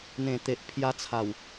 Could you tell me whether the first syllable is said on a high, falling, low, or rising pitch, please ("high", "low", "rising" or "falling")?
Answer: low